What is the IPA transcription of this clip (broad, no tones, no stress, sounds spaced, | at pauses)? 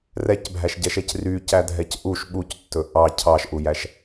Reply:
r ɛ c bʱ æ ʃ ɟ ɛ ʃ ɛ c r y c æ dʱ ɛ c ʔ u ʃ ɓ u c tː ɵ ʔ ɑ cʰ ɑ ʃ ʔ u j æ ʃ